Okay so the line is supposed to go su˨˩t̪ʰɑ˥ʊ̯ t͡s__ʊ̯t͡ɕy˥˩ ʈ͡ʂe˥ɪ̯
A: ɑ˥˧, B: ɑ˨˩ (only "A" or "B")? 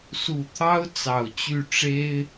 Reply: B